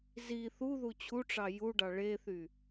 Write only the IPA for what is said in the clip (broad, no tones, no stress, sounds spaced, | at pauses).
z i θ u ð u t͡ɕʰ u ʈ͡ʂ ɑ j u ɖ ɑ ɭ e θ y